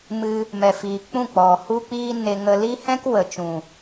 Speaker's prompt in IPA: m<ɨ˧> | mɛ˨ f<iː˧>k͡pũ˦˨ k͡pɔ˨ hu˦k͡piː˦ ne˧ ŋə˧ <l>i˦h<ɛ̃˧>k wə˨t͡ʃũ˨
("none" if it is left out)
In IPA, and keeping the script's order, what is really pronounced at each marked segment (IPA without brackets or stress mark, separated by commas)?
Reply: ɨ˧, iː˨, l, ɛ̃˦